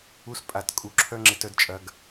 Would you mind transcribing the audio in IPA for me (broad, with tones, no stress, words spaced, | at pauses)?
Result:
u˦s pʼa˦˨t kʼu˨ǁʰœ˦ŋ͡ǁɪ˧t œ˦dt͡ʃʼɐ˦ɡ